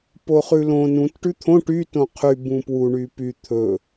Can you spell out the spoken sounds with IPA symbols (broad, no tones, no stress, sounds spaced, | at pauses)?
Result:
p o χ ʉ l õ n ũ t ʈ ʉ t̪ʰ õ ʈ y t õ qʰ y b ũ p w u ɳ y p y t̪ʰ ɵ